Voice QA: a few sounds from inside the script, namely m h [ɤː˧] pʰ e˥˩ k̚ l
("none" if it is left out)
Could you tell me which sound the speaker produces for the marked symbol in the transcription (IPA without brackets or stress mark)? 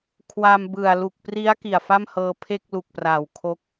ɤː˧